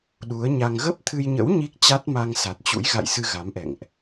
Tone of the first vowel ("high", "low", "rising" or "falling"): rising